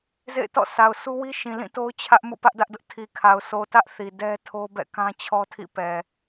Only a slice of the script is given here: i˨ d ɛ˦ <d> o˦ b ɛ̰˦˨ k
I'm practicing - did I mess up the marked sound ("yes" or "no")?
yes